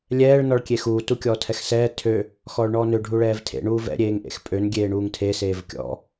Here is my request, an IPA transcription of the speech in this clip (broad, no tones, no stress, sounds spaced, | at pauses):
lʲ ɛː ɭ n ɔ ɭ kʲ e x uː t u kʲ ɔː tʰ ɛ x s ɛː tʰ ø | x ɔː ɭ ɳ ɔː n ø ɖʱ u ɭ ɛː v tʰ ḛ ɳ uː v ɛ̰ ɾʲ eː ŋ ʔ ḛ x pʼ ø n ɡʲ eː ɳ uː ŋ tʰ e s eː v kʲ ɔ̰